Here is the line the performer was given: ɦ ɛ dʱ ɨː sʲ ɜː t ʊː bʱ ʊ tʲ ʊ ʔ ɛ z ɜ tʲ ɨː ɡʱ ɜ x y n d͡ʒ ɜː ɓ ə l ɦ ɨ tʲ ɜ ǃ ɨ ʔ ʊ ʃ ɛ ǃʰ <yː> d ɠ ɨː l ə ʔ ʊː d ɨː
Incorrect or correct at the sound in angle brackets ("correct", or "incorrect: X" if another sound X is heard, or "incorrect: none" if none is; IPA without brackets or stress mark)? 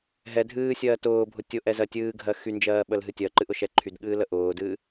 incorrect: y